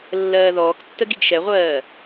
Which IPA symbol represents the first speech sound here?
lː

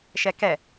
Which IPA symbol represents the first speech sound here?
ʃ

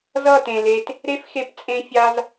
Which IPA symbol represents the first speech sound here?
z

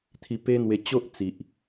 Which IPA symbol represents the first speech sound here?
t̪ʰ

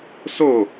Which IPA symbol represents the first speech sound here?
s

